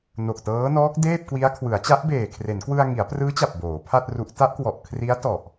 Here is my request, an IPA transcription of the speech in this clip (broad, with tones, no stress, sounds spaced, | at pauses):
n o˨˩ k̚ t ɤː˦˥ n ɔː˦˥ k̚ d eː˥˩ p̚ k w i˦˥ a̯ kʰ w ɯ˩˦ a̯ t͡ɕ a˦˥ ʔ b eː˨˩ kʰ r e˩˦ n k w ɯ˧ a̯ ŋ i˩˦ a̯ p r ɯː˦˥ t͡ɕ a˨˩ p̚ b oː˩˦ pʰ a˥˩ t̚ r u˦˥ ʔ t a˦˥ ʔ k w ɔ˨˩ ʔ kʰ r i˦˥ a̯ t ɔ˨˩ ʔ